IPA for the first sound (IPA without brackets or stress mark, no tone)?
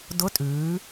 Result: d